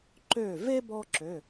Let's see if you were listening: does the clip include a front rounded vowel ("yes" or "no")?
yes